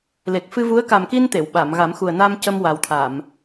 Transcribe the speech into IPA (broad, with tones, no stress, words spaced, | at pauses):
le˨˩k̚fɨ˧vu˧˥ə̯ ka˨˩mki˧n t̪e˨˩˨wɓa˨˩˨mɣa˨˩˦m xu˨˩ə̯na˧m cə˧mwa˨˩wt̪ʰa˨˩˨m